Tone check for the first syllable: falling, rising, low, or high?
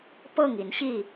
falling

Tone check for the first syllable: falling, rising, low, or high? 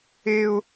high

